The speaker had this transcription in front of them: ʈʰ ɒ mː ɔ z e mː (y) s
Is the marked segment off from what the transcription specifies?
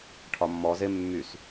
no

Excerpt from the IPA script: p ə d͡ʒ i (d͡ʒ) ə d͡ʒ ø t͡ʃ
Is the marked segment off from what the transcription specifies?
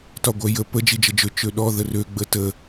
no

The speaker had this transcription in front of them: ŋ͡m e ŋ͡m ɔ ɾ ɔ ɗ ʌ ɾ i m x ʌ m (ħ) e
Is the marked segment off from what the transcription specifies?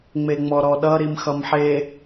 no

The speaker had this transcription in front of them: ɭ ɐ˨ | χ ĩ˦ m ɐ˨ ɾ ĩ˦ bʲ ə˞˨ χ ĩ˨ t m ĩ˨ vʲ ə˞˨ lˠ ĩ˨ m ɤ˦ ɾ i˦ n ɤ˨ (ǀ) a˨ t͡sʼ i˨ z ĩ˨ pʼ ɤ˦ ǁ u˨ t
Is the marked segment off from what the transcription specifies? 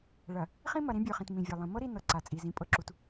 no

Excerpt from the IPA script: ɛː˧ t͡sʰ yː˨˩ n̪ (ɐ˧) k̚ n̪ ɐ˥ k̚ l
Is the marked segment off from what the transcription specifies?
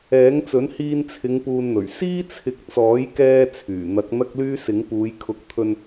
yes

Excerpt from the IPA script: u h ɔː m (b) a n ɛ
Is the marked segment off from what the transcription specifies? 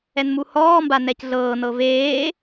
no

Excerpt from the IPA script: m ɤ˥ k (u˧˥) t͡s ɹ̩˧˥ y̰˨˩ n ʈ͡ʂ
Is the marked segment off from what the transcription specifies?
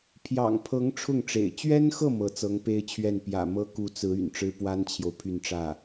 no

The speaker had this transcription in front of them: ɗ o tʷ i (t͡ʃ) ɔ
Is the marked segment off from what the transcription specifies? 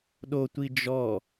yes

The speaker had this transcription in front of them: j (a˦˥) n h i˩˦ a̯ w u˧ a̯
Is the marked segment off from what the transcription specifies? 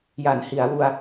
yes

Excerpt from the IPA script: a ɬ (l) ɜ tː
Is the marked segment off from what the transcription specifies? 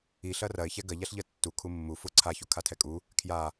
yes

